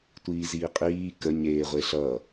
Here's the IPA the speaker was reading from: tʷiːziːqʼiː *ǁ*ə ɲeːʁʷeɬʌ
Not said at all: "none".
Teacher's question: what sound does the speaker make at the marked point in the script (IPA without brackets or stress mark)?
k